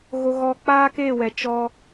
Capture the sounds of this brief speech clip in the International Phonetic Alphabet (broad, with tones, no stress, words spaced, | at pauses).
ɣo˦ɣɔ˦ k͡paː˦ke˦˨wɛ˨ t͡ʃɔ˦